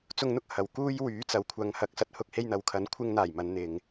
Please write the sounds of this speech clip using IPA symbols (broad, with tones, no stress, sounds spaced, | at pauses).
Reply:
t͡s ʊ˧ ŋ n̪ ʊ˥ k̚ h ɐ˨˩ w k uː˧ j w yː˨˥ t͡s ɐ˨ w kʷʰ ɐ˨˧ ŋ h ɐ˨˥ k̚ s ɐ˧ t̚ h ʊ˧ k̚ h e˧ j n̪ ɐ˨˥ w kʰ ɐ˨˥ n kʷʰ ɪ˧ ŋ n̪ aː˨˩ j m ɐ˨˧ n n̪ ɪ˨ ŋ